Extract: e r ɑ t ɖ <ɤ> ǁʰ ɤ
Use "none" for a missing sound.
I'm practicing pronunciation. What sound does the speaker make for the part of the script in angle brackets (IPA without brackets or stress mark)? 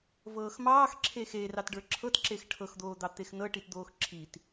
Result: ə˞